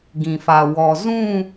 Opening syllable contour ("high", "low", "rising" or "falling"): low